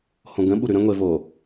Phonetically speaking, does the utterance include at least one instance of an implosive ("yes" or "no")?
yes